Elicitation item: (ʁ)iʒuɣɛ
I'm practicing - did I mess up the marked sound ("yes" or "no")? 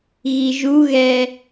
yes